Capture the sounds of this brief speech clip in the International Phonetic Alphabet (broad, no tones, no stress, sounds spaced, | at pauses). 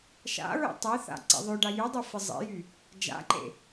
ʃ a̰ ɹ ḛ tˤ e θ a̰ ǀ ḛ ðˤ ø ɖ a j y dˤ y f ɪ zˤ ḛ j y | d͡ʒ a̰ ǃ ḛ